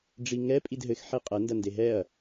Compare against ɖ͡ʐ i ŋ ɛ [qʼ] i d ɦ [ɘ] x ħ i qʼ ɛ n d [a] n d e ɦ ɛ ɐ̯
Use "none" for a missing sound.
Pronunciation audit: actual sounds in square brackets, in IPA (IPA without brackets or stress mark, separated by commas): pʼ, ɘ, ɐ